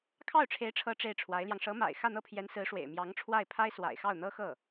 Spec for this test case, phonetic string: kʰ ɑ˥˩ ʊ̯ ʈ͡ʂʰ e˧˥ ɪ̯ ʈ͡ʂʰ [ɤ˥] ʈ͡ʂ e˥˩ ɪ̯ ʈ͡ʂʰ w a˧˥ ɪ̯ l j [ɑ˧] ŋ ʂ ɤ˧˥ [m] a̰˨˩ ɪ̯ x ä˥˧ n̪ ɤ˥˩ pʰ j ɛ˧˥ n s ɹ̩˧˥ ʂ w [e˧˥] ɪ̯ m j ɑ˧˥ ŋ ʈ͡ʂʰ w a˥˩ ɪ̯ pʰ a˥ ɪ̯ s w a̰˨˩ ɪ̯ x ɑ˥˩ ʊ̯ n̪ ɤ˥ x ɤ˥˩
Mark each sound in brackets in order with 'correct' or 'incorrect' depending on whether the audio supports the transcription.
correct, correct, correct, incorrect: ḛ˨˩

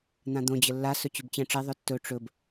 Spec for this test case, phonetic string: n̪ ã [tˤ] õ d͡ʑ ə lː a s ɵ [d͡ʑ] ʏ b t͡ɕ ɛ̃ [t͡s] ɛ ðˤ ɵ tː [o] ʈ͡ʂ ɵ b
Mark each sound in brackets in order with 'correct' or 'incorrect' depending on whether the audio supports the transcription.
incorrect: d̪, incorrect: t͡ɕ, incorrect: ʈ͡ʂ, incorrect: ɵ

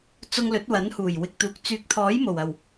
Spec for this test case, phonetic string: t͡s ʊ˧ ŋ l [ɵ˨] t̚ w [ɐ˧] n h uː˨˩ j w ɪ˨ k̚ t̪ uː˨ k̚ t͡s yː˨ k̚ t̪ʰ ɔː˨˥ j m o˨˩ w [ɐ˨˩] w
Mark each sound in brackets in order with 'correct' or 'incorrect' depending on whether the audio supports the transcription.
incorrect: ɵ˨˥, incorrect: ɐ˨˥, correct

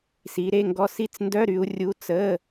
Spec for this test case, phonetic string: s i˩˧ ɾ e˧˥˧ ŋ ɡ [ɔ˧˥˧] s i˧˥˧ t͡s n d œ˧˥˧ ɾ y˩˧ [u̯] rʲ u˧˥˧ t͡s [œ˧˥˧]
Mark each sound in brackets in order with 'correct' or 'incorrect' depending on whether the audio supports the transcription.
correct, correct, incorrect: ə˧˥˧

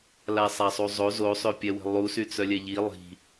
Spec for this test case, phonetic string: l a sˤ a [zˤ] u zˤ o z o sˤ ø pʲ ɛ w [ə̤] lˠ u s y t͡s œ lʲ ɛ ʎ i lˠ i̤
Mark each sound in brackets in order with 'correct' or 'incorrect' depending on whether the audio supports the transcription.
incorrect: sˤ, correct

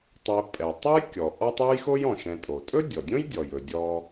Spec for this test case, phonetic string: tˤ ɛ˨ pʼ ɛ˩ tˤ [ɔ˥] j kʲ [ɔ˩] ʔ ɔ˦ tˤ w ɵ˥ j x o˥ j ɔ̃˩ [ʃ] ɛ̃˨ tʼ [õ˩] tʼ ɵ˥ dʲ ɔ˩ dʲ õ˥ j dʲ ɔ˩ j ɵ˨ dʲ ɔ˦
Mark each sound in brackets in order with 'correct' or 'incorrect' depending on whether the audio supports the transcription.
incorrect: o˥, correct, correct, incorrect: o˩

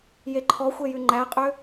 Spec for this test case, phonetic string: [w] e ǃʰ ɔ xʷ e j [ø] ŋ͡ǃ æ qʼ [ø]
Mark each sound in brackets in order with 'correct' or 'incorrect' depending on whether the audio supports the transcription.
incorrect: j, incorrect: ʉ, correct

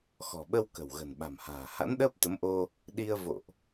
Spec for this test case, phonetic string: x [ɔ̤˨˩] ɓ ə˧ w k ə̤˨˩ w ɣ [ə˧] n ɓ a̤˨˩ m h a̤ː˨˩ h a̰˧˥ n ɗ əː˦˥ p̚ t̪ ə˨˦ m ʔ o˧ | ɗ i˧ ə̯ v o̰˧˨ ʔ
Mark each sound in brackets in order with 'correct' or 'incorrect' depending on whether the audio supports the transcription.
correct, incorrect: ə̤˨˩

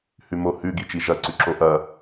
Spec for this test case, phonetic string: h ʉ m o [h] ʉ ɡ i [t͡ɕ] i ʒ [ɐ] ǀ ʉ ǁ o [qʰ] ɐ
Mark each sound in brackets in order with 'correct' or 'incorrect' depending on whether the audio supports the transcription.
correct, incorrect: t͡ʃ, correct, incorrect: ʔ

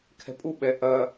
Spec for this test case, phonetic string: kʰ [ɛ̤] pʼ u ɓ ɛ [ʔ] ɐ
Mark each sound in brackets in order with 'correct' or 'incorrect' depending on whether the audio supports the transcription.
correct, correct

